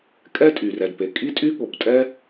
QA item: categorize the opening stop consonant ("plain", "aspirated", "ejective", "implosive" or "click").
ejective